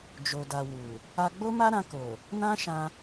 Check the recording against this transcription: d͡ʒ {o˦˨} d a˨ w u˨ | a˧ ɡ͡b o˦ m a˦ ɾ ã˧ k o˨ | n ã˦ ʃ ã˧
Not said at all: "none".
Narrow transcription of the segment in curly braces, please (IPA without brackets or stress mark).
o˨